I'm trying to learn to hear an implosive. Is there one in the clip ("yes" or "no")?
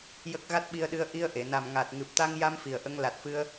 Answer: yes